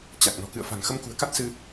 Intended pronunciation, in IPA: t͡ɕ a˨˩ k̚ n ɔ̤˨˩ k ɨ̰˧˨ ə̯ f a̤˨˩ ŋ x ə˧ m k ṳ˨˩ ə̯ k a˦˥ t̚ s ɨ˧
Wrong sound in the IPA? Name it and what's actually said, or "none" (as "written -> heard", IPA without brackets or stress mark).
none